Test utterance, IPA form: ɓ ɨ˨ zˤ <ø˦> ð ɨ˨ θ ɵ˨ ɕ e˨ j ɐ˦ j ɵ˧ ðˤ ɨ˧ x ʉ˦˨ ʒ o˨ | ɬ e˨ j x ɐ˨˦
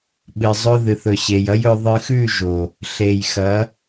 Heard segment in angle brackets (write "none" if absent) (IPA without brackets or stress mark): ɵ˦